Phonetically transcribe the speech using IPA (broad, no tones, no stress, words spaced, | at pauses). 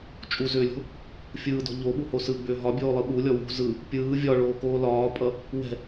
t͡ʃʼuzʏːlʲo̤ | fʲɯːdɔ̤ ʎoɓuho sɯɡ͡bʏː ɦɒbʲoːlˠɯ ɓulʲɔ wṳ zɯ | pʲɯː vʲɒɭoːkoː lɒːpʼʌ | wɛ̤